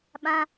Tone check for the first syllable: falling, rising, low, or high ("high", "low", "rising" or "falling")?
high